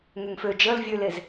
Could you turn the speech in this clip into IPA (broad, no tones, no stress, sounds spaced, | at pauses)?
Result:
ŋ ɛ ŋ f ø d͡ʒ ə l vʲ ø l e z